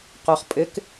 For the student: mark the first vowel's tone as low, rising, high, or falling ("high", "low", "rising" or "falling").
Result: low